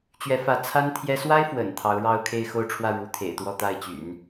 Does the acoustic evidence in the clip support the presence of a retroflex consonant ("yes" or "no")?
yes